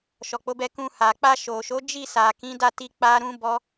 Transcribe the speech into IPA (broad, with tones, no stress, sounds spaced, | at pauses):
ʃ ɔ˨ k͡p o˨˦ b ɛ˧ k ũ˧ h a˨ k͡p a˧ ʃ o˨ ʃ o˨˦ d͡ʒ i˦˨ s a˨ k ĩ˨˦ d a˦˨ t i˧ k͡p a˦ ɾ ũ˦ b ɔ˦